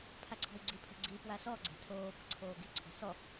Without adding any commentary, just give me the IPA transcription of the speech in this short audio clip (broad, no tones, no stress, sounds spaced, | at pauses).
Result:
pʰ a ǀʰ ɔ̤ i̯ ɡ͡ǀ i pʰ e̤ ɡ͡ǀ i p w a s ɔ ɡ͡ǀ e̤ tʰ oː p ə̤ ǀʰ oː ɡ i̤ ǀʰ e̤ s ɔ